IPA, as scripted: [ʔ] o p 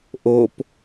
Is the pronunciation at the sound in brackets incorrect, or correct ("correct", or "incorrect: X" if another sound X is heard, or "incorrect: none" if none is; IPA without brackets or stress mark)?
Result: correct